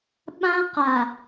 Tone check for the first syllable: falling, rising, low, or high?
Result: high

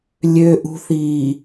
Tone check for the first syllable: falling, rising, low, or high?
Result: high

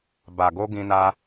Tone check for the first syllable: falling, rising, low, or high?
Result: low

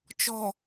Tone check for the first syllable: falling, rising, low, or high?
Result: low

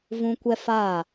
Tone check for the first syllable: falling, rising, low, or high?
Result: high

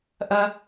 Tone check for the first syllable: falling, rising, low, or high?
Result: high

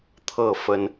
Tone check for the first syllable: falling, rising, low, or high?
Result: falling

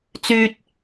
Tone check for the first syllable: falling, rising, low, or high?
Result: high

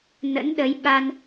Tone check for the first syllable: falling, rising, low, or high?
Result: rising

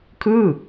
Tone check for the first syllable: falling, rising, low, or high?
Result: falling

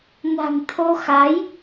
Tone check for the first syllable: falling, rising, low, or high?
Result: low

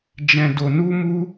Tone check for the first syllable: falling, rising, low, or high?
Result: low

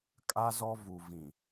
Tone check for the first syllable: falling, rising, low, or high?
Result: high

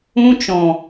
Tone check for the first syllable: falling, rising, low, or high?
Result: high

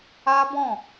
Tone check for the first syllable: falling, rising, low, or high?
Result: high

